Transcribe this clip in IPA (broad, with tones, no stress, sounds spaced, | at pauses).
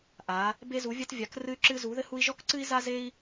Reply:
ʔ a˧˥ | b e˥ z u˧˥ vʲ ɐ˥ t vʲ a˧˥ k r ɨ˥ y̯ ǁ ɨ˥ z u˧˥ ð ɘ˥ h u˥ i̯ ʒ ɔ˥ k ǀ ɨ˥ i̯ z a˥ z e˥ i̯